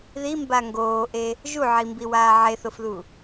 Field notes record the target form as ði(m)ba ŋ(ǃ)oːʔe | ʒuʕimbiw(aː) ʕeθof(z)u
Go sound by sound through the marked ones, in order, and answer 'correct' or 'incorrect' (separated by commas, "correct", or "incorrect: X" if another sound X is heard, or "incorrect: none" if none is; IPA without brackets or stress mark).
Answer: correct, incorrect: ɡ, correct, incorrect: ð